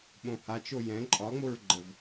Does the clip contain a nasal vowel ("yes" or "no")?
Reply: yes